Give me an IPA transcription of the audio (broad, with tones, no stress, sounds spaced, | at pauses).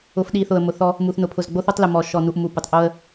ʊ˨ f ɗ i˨ θ ʊ˨ ə̯ m ʊ˨ θ ɔ˦ | m u˨ θ n ʊ˨ pʰ ʊ˨ z ɡ͡b o˦ θ o˦ tˤ l ʊ˨ m ɔ˨ ʃ ɔ˨ n u˨ ʔ m u˨ p ʊ˨ tˤ ʔ o˦ ə̯